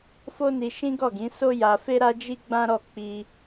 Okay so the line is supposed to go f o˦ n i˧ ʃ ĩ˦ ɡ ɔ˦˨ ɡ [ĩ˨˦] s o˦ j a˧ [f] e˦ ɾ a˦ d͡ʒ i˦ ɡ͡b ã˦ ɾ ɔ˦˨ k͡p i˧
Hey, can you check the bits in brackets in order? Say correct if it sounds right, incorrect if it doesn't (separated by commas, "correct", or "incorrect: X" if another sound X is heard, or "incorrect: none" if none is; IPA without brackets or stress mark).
correct, correct